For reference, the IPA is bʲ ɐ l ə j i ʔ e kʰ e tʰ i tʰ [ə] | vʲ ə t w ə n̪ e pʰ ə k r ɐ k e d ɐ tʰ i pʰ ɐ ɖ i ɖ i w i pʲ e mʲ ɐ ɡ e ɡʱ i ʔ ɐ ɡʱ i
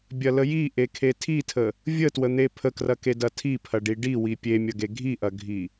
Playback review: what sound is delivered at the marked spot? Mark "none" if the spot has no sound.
ə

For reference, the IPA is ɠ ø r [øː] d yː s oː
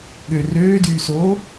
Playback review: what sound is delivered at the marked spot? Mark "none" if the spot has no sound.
øː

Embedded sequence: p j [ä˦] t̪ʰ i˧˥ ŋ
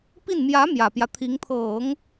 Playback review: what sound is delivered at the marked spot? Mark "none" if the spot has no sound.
ä˦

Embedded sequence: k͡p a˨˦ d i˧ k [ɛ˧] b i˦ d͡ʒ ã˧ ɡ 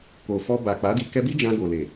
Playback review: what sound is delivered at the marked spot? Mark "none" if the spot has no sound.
ɛ˧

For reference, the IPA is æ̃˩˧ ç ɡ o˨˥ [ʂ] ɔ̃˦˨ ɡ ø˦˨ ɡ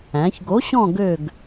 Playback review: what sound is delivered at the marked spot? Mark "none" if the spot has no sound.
ɕ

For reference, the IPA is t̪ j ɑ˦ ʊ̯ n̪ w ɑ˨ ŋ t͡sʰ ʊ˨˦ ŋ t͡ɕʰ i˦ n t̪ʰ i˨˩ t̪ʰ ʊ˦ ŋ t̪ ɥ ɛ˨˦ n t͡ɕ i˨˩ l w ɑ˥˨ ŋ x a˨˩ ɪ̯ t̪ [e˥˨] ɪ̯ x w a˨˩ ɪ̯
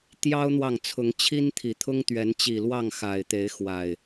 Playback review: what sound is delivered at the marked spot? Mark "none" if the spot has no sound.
e˨˦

